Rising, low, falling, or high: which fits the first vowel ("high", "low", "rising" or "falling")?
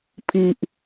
low